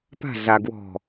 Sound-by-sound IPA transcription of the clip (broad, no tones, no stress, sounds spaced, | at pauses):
p a̤ ɮ a ɡ w ɔ̤